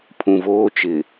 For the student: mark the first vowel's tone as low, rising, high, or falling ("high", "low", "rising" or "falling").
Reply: low